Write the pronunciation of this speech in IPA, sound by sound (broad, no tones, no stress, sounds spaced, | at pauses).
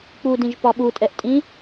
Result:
k͡p u d ĩ ʒ p ɒ ɓ u tʼ ɛ ʔ tʼ ĩ